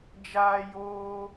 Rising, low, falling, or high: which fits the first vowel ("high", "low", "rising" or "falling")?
high